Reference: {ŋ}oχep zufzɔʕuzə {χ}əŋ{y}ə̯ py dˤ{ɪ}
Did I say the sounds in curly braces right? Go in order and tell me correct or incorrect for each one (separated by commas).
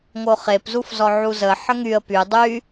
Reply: correct, incorrect, correct, incorrect